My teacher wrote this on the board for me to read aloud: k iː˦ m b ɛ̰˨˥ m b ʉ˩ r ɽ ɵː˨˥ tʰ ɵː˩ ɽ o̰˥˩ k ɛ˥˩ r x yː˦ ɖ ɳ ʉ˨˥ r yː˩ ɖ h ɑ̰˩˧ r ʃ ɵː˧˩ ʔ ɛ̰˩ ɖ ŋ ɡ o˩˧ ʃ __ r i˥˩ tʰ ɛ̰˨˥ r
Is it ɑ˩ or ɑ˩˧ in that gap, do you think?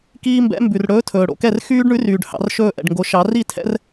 ɑ˩˧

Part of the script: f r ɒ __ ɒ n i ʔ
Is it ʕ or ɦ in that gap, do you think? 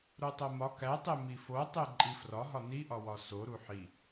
ɦ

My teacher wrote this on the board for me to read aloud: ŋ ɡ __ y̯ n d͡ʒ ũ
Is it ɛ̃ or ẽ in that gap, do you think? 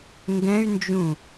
ɛ̃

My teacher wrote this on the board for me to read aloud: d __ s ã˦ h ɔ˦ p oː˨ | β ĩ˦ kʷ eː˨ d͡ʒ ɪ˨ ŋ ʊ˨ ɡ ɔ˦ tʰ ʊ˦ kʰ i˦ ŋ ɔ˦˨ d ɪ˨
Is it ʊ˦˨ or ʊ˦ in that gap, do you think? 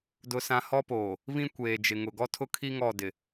ʊ˦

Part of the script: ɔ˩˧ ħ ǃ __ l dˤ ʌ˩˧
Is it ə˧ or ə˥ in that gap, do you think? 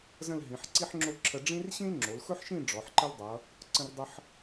ə˥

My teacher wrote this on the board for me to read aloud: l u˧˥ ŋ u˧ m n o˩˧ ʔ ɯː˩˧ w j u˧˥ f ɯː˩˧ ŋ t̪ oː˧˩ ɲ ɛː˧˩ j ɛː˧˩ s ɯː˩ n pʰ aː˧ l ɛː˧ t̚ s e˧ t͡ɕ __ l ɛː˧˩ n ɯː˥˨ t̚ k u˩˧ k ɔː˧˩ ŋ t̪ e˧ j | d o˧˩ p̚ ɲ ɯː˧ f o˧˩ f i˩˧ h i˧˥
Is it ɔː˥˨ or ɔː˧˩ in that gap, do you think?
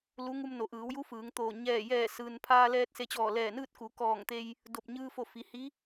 ɔː˧˩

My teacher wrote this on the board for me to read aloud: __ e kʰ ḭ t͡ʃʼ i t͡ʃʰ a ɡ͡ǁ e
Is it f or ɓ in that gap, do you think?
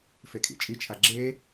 f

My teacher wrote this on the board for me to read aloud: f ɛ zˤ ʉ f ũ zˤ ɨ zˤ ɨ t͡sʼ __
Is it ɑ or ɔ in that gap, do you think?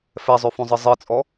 ɔ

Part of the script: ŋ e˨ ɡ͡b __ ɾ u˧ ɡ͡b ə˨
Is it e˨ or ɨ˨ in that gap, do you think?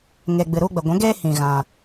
ɨ˨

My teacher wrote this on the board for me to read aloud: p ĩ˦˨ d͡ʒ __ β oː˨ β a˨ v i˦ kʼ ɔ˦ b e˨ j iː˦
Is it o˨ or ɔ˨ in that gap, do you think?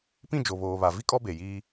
o˨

